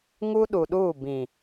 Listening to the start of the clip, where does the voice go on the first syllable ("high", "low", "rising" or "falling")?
high